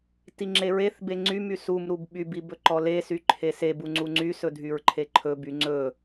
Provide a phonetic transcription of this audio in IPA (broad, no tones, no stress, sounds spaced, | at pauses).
t i ŋ͡ǁ e ɹ e θ b e ŋ͡ǀ y m y s u m ɾ u b ɓ y b i b ɵ ǃ ɔ l e s y ǃʰ e s e b u ŋ͡ǀ u ŋ͡ǀ y s ɵ dʱ y ɹ ǃʰ e ǃʰ ɵ b y ŋ͡ǀ ɵ